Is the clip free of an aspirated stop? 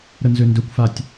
yes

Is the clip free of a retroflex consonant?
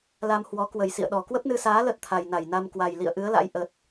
yes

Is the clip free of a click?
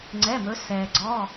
no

